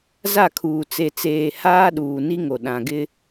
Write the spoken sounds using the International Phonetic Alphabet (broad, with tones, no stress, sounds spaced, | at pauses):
z a˦˨ kʰ uː˨ t͡s e˨ t͡s eː˨ h aː˦ ɗ uː˨ n i˦ ŋ o˨ ɗ ã˨ ɡ ɪ˦